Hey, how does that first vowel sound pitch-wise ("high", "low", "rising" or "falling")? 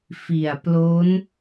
low